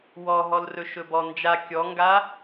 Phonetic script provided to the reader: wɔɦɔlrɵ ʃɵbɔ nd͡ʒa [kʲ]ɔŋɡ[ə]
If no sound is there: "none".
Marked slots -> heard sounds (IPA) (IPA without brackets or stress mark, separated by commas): kʲ, a